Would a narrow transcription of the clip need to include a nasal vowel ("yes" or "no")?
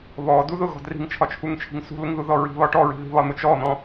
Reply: yes